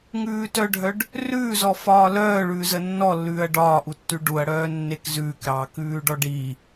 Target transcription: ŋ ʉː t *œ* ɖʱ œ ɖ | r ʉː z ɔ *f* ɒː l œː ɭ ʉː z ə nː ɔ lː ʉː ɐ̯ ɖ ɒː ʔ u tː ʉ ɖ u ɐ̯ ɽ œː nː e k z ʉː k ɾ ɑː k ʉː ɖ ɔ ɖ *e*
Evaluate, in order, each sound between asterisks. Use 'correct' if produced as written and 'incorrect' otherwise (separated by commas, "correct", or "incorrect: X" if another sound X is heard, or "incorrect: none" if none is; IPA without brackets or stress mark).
correct, correct, incorrect: i